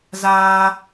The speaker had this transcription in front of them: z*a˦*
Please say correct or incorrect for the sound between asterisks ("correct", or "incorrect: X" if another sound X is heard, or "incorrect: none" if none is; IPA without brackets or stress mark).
incorrect: aː˦